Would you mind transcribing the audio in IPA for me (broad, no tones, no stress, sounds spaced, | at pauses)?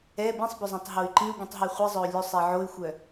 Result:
ɛ b ĩ sˤ b ɵ zˤ œ̃ tˤ ɦ o y̯ ǃ ĩ u̯ ɡʷ ĩ tˤ ɦ i χʷ i zˤ œ u̯ lʲ ɵ sˤ ɛ ʕ o y̯ xʷ œ